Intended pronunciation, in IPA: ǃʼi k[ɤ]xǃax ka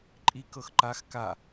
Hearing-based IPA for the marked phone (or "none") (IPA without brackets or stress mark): ɤ